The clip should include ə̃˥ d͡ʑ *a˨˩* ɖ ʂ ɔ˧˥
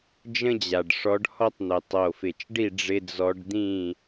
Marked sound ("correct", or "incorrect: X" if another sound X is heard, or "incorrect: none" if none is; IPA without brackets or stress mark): correct